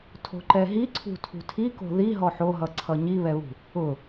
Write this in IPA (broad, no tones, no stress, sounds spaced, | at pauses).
tʰ o̤ ǃ ɛ ɦ i ǀʰ ṳ tʰ ṳ tʰ i k o̤ ð i ɦ ɔ ħ o ɦ ʌ ǀʰ ʌ ɲ i β ɛ β ṳ | ʊ